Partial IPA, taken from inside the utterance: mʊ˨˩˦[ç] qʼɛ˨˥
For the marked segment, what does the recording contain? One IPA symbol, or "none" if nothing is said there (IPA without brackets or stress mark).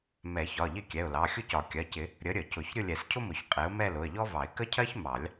ç